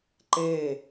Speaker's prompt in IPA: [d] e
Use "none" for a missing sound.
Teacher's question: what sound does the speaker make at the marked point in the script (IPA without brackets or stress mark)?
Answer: ǃ